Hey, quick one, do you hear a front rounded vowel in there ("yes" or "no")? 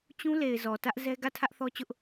no